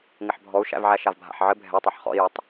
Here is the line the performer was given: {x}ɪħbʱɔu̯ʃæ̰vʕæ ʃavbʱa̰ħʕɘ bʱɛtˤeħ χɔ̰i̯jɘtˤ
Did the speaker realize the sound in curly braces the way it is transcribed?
no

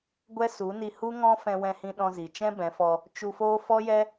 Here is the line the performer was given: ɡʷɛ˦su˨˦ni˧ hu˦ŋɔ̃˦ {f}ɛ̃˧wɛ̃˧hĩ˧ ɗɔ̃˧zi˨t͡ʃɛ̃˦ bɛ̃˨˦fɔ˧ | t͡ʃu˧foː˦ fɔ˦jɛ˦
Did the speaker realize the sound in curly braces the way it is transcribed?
yes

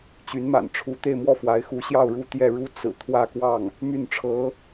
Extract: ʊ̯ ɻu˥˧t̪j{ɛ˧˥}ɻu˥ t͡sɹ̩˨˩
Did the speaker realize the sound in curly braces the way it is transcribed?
no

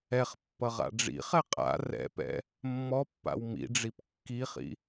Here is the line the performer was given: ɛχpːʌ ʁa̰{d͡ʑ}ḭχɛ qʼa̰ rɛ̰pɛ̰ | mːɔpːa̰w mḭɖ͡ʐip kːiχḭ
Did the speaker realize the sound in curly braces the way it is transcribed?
no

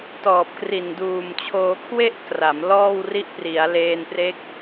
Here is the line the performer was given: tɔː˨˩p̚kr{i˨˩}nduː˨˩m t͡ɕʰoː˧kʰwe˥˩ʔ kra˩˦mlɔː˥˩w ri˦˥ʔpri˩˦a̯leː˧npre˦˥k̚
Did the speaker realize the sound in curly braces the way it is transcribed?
yes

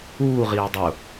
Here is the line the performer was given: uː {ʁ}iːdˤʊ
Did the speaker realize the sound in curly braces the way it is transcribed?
yes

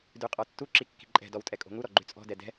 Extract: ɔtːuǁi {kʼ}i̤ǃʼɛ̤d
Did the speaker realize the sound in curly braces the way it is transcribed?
no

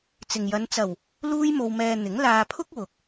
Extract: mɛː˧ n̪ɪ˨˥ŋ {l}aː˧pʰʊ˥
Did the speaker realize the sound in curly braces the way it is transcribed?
yes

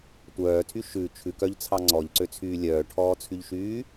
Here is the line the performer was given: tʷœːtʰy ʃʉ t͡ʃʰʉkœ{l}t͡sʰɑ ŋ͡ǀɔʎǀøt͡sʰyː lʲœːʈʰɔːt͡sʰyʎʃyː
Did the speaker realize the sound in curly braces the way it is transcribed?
no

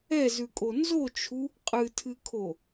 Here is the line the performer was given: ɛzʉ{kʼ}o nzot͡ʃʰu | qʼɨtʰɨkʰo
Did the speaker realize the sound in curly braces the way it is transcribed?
yes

